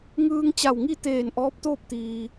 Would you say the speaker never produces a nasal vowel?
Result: yes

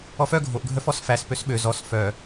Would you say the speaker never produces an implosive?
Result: no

